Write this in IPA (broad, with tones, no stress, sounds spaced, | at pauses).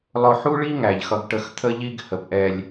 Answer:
lˠ ʊ˨ ħ u˦ ɭ i˦ ŋ æ˨ ʎ x ʌ˦ ɡ ʈ ə˦ x t̪ʰ ə˦ ʎ i˦ ɡ h ə˨ p ʔ ɛ˦ lʲ